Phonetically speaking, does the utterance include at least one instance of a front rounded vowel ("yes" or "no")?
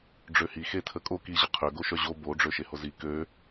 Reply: yes